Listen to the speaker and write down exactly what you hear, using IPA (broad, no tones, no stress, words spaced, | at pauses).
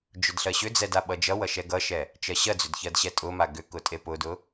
d͡ʒʊdɬɜɕʏd͡zɛd aɓʌd͡ʒʌwʌ ʃɛɡʌʃɛ | t͡ʃɜɕɜd͡zʏd çɜdɕɛtʼʊma ɡʏ kʊtʼepʊdʊ